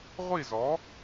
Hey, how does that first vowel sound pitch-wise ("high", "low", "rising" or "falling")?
falling